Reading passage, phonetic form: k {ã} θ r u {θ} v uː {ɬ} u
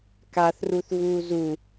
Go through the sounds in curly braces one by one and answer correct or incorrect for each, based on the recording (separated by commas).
incorrect, correct, incorrect